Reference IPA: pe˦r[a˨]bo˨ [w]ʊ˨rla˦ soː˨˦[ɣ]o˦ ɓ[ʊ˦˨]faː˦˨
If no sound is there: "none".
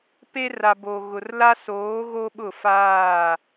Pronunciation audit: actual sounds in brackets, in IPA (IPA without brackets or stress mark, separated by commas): a˨, ɣ, ɣ, ʊ˦˨